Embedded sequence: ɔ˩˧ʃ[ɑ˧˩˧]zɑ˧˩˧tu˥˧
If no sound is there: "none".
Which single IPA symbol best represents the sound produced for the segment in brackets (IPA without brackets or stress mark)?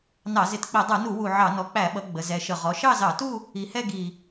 ɑ˥˧